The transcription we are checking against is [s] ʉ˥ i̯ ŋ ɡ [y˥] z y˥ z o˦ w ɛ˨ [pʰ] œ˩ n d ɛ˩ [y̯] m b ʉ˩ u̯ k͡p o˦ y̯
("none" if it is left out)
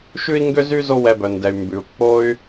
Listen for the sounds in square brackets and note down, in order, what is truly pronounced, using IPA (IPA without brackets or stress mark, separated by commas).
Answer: ʃ, ø˥, b, y̯